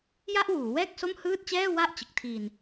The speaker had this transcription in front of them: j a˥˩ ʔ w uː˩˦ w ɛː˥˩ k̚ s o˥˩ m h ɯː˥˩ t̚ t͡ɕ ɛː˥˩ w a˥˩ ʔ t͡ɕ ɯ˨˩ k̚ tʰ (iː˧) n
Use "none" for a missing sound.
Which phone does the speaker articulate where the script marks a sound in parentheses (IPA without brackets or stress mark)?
iː˧